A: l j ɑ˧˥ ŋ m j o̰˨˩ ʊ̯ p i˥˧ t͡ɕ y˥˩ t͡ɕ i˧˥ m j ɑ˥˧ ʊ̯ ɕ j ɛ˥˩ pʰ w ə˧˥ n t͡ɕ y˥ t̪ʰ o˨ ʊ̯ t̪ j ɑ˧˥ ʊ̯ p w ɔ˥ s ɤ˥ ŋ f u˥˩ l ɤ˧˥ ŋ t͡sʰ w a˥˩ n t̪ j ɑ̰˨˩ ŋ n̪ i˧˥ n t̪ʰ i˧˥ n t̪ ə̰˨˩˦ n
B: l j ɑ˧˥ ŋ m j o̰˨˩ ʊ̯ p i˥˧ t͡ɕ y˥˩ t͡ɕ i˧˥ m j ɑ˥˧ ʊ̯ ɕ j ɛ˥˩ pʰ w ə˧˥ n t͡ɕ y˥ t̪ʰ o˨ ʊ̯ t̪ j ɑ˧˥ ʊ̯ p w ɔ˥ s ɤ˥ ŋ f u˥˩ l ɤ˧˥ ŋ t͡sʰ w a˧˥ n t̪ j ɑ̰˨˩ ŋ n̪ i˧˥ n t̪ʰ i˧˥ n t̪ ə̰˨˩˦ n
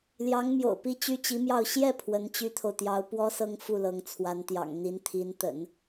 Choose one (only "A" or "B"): B